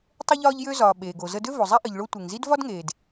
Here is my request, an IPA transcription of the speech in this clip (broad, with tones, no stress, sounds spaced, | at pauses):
tˤ ə˧ ʎ ɒː˧ ʎ j ø˧ z ɒː˩ ɓ eː˩ ɡ o˩ z ə˧ d ø˥ v o˩ zˤ ɛ˥ ʔ ə˩ ʎ ɭ o˧ tʷ e˩ ŋ z i˥ d v ɒ˥ d ŋ eː˩ d